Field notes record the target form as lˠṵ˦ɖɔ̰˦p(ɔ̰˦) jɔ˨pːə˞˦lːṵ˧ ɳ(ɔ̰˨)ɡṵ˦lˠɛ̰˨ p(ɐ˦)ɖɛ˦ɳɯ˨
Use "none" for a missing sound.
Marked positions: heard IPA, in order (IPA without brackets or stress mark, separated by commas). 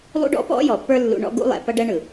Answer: ɔ̰˦, ɔ̰˦, ɐ˦